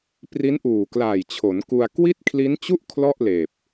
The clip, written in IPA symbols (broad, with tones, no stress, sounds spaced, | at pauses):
p r i˦˥ n ʔ uː˨˩ k l aː˨˩ j t͡ɕʰ o˩˦ n k u˧ a̯ k w i˥˩ t̚ kʰ l i˦˥ n t͡ɕ u˥˩ ʔ kʰ l ɔ˥˩ ʔ l eː˨˩ p̚